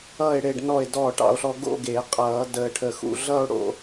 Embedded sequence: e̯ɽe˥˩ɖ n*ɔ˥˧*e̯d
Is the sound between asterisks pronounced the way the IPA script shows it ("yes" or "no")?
no